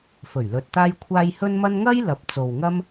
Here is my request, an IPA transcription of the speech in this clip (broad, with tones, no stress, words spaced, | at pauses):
fɵ˨˩ɥ lɵ˧t̚t̪aː˥jkʷʰaː˥j hɵ˥nmɐ˥n ŋɐ˥j lɐ˧p̚ t͡so˨wŋɐ˥m